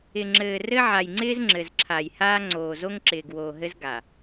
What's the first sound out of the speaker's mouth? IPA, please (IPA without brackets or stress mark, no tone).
ɪ